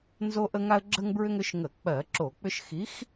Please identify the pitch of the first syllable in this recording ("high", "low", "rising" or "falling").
high